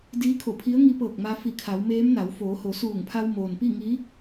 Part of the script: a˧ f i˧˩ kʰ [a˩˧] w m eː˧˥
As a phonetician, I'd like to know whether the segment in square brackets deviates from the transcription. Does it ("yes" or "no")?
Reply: no